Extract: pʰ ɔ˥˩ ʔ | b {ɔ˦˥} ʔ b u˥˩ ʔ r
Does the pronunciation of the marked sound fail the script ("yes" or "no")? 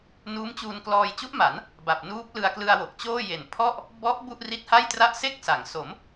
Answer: no